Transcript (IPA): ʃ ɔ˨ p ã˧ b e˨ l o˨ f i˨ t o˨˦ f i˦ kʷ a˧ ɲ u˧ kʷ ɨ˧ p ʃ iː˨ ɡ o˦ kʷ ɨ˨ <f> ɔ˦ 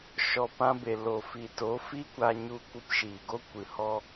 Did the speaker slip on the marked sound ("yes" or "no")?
yes